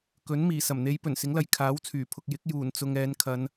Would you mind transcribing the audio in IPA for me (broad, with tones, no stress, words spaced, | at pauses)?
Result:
kɵ˨˥nmiː˨˩ sɐ˨˩mn̪e˨˧j pɵ˨˩nsɪ˨˥ŋlɐ˨j kʰaː˨˥w t͡sʰyː˨˩pʰʊ˨k̚jɪ˨˥k̚ juː˨˩nt͡sʊ˨ŋ ɛː˨˧nkʰɐ˨˧n